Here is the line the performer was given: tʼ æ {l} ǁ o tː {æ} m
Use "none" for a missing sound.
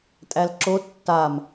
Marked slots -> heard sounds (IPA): l, a

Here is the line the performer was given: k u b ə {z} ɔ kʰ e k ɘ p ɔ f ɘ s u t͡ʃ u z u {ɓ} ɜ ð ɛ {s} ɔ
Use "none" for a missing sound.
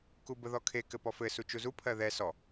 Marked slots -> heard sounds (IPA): ð, pʰ, s

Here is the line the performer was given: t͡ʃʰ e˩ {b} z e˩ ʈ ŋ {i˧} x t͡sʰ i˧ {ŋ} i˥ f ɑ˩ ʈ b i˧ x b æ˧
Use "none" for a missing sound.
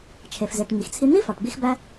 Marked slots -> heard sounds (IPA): f, i˩, n̪

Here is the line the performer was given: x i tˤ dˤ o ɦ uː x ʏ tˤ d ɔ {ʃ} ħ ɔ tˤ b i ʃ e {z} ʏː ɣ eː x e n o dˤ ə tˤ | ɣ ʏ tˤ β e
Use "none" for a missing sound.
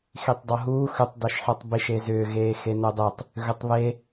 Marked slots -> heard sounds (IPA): ʃ, z

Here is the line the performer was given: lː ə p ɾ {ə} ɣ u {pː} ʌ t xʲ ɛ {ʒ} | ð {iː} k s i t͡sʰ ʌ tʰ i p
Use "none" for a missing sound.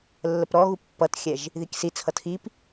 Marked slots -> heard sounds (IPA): ɔ, pː, ʒ, i

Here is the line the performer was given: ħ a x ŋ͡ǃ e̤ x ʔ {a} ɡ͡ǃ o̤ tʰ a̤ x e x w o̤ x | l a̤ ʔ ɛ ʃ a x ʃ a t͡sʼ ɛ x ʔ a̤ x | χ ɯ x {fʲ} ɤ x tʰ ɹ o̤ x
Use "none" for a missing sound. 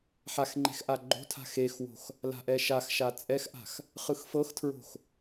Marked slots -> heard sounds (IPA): a, f

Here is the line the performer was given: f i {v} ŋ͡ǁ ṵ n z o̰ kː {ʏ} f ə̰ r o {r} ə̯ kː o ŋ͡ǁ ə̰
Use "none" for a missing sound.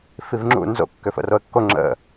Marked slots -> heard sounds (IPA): v, ʏ, none

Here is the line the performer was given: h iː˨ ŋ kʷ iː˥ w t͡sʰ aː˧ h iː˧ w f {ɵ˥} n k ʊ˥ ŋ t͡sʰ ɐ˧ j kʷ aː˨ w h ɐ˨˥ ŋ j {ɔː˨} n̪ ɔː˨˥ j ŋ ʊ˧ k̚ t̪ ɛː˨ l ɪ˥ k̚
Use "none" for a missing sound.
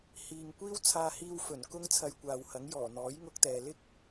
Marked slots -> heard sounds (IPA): ɵ˨˩, ɔː˨˩

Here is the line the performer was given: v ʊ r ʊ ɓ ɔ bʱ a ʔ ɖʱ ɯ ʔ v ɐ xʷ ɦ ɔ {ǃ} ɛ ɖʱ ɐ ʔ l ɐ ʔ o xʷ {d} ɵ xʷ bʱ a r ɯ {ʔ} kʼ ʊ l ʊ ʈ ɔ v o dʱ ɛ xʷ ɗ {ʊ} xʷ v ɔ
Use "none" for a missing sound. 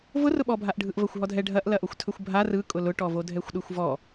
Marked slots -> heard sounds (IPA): dʱ, tʰ, none, ɯ

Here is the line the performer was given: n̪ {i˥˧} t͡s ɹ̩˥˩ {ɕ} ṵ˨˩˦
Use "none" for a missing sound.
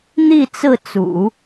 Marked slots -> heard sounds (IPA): i˥˧, t͡s

